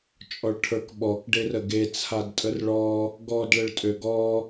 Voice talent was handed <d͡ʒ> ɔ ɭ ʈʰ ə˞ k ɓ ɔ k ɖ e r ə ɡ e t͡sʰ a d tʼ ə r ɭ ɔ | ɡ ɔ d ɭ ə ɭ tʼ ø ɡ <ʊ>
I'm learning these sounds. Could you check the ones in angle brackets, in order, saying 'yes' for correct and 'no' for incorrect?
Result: no, no

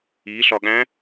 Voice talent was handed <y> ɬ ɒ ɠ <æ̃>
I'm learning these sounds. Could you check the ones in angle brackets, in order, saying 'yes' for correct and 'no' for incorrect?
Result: no, yes

